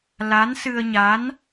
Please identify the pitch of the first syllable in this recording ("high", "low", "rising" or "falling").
rising